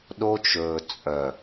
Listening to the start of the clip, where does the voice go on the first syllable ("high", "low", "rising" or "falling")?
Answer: high